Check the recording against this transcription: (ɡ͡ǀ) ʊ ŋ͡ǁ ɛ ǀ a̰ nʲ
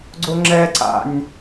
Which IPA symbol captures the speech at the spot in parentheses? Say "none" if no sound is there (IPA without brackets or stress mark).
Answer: ɡ͡ǀ